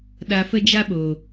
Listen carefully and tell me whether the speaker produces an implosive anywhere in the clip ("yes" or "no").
yes